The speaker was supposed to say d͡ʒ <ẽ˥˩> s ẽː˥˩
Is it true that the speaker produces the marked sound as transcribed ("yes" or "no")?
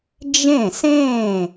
yes